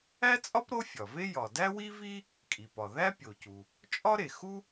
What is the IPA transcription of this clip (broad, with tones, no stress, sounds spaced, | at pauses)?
æ˥ t͡sʼ ɒ˥ p ɾ o˥ fʲ ɒ˩ v e˥ j ɒ˩ d æ˥ w i˥ v i˥ | kʼ i˩ p ɒ˩ ð æ˥ pʲ o˩ c u˩ | t͡ʃʼ ɒ˥ ɾ e˩ x u˥